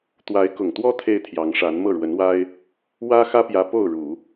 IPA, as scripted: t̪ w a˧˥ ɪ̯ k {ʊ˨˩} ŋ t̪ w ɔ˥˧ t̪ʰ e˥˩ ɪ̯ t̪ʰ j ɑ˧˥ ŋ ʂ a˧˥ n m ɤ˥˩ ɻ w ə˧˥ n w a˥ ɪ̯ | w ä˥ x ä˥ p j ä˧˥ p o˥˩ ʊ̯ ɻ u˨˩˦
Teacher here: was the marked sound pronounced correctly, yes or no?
yes